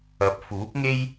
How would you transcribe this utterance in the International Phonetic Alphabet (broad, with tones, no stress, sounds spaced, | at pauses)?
ɐ˨˥ p̚ f uː˨˥ p̚ ŋ e˥ j